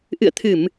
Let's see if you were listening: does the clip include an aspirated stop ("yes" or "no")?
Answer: yes